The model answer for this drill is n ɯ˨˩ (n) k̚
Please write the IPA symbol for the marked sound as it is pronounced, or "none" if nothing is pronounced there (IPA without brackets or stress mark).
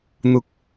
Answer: none